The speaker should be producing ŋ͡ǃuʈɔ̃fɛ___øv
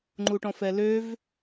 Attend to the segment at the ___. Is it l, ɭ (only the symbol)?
l